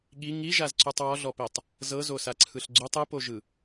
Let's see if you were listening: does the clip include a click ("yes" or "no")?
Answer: yes